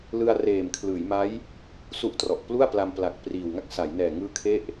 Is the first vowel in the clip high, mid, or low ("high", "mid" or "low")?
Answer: high